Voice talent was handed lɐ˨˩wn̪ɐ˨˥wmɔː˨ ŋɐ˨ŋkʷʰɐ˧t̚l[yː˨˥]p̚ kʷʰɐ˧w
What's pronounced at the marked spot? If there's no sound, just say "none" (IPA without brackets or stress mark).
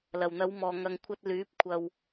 yː˨˥